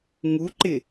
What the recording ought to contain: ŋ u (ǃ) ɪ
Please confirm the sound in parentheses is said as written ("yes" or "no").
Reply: yes